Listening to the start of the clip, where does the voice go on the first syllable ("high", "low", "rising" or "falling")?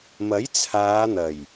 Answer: rising